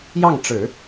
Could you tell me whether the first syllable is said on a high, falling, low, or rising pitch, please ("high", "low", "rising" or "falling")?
falling